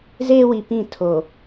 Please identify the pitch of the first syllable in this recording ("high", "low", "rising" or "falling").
high